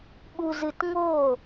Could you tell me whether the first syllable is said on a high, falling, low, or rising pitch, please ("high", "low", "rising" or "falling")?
low